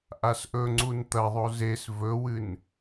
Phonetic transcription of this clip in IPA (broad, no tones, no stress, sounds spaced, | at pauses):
ʔ a s ʔ ɵ ŋ͡ǀ u n t̪ ɐ ðˤ o z e s v ɵ w ɨ n